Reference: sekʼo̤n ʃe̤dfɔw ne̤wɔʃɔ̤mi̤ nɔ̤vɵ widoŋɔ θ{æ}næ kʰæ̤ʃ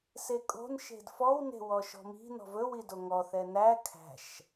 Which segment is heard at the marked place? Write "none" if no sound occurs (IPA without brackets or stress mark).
ɛ